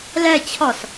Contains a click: no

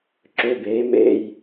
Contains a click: yes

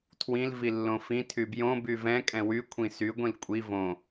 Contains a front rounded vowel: yes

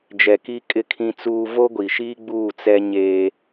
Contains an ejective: yes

